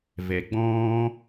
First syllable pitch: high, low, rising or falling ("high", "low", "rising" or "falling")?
low